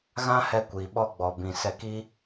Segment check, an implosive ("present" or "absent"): present